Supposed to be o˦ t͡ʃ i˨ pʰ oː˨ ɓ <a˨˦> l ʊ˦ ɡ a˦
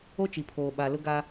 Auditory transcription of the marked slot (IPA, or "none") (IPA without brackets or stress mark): a˨